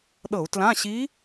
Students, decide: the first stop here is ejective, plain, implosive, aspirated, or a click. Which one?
implosive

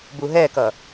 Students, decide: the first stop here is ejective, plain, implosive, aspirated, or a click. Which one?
plain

